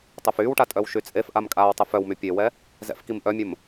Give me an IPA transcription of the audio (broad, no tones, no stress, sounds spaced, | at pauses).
tˤ o f yː w ʈ a tʼ œ w ʃ y t͡sʼ e f ʔ a m kʼ aː w tˤ ə f œ w m y pʲ e w ɛ | z ɛ̰ f k i m ʔ œ mʲ ə m